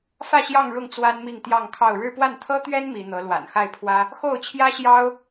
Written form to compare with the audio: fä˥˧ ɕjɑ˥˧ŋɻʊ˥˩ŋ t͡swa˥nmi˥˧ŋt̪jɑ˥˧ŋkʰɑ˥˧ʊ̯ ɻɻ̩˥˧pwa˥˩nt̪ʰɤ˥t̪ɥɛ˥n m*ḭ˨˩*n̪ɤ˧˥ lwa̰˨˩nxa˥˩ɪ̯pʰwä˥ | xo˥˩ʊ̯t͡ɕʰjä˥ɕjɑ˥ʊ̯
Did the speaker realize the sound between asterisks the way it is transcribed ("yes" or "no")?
no